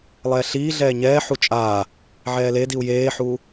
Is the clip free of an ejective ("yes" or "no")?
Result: no